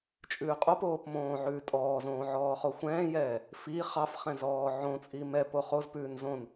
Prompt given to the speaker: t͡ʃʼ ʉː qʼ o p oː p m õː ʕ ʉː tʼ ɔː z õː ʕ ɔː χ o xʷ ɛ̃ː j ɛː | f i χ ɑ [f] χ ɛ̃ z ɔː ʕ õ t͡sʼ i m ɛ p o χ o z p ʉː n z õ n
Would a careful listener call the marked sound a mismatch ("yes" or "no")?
no